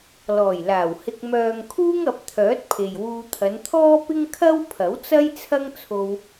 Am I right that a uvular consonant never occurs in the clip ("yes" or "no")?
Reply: yes